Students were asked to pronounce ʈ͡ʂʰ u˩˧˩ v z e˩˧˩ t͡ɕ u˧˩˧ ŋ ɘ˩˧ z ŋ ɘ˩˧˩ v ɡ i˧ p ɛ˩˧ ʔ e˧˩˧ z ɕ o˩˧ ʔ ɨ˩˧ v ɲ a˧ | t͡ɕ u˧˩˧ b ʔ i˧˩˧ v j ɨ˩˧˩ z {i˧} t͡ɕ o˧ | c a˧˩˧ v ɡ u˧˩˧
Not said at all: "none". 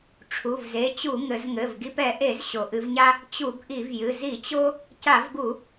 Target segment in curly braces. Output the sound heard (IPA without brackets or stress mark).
i˧˩˧